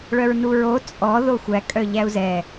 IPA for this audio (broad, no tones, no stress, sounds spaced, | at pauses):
ɭ œ ɹ n u ɹ o t͡sʼ ɔ ð o xʷ æ kʼ œ ʎ æ u̯ z ɛ